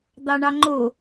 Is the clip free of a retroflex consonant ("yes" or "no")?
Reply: no